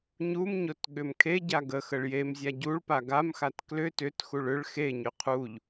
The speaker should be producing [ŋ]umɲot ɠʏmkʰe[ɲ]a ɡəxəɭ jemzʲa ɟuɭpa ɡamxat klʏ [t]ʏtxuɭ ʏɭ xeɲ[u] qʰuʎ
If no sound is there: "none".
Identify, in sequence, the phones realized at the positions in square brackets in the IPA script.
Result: ɲ, ɟ, t, ʏ

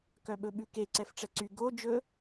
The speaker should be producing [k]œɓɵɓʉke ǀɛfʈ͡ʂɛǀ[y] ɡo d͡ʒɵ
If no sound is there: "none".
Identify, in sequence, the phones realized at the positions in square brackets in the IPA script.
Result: k, y

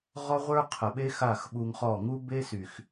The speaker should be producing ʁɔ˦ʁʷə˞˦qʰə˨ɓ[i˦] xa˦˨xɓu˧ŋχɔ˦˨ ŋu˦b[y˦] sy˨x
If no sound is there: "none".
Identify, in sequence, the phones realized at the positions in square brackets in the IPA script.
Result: e˦, e˦

